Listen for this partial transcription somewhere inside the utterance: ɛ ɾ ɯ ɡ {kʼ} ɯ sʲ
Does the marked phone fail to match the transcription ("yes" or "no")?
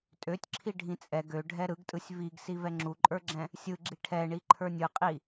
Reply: yes